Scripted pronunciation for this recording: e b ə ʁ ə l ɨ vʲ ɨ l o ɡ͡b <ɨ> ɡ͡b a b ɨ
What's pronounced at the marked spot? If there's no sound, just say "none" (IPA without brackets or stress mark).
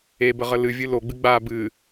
ɨ